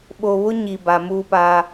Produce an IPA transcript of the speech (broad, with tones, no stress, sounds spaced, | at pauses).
ɓ o˨ β ʊ˦ ɲ i˨ b a˨ m uː˦ p a˦